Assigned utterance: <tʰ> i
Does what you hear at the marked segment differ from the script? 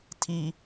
no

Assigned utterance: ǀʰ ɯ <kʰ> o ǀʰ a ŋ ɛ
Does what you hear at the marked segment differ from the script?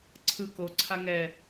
yes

